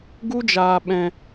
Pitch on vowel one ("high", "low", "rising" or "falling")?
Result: high